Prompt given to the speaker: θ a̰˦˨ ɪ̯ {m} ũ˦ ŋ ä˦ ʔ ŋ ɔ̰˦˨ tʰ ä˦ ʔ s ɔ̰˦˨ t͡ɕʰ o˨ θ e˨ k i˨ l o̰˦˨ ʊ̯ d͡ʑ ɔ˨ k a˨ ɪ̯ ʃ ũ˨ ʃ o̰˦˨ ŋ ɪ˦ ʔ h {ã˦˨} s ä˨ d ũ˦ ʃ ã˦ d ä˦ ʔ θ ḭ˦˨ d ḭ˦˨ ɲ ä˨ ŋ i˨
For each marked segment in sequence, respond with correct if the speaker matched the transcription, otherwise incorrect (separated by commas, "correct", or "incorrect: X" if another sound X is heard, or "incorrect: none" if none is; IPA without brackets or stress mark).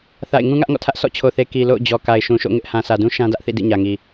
incorrect: ŋ, incorrect: ã˨